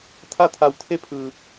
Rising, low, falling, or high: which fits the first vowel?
falling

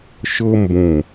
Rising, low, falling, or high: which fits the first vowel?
high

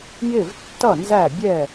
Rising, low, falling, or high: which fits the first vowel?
falling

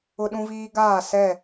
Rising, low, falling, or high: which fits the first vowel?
high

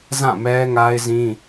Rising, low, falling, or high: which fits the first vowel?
falling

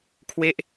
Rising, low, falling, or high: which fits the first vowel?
falling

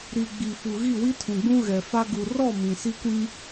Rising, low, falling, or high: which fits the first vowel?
low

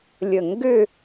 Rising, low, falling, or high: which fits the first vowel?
falling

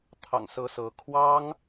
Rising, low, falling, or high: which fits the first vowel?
low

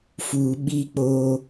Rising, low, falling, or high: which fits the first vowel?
low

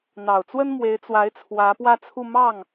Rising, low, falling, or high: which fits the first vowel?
low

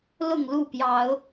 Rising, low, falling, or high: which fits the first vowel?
falling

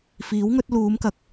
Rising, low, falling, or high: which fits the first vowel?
rising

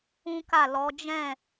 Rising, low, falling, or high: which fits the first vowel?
high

